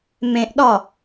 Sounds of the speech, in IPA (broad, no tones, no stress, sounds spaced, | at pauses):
m ẽ ʔ ɗ ɒ